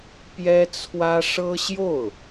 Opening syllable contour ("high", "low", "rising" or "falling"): high